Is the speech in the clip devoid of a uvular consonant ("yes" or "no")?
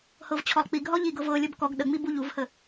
yes